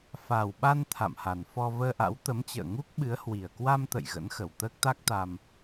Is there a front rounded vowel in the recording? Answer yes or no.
no